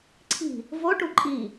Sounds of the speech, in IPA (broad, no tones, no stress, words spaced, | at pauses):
ǀʰi̤ | voʈu ǃʼi